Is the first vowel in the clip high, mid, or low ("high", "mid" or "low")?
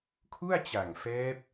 high